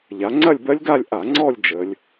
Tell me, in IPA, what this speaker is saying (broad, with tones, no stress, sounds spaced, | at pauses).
ʎ a˩˧ ŋ͡ǀ ɐ˥˧ lʲ b ɜ˦˥ lʲ ɡ a˥˧ lʲ ʔ a˧˩˧ ŋ͡ǀ ɔ˥˧ lʲ d͡ʒ ə˩˧ lʲ